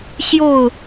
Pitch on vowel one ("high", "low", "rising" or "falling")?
falling